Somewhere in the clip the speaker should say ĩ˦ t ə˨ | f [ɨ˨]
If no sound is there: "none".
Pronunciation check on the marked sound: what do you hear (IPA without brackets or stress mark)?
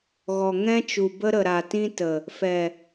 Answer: ɛ˨